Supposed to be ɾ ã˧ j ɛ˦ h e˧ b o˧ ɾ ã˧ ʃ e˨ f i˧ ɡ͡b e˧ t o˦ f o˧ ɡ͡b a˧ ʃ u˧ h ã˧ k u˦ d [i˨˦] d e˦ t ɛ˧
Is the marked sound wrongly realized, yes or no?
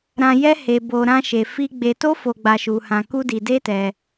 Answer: yes